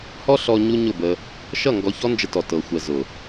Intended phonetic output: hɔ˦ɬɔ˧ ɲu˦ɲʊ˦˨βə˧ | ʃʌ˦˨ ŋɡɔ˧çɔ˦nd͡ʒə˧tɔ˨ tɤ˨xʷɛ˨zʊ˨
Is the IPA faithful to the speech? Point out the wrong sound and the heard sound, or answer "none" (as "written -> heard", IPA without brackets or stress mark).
β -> b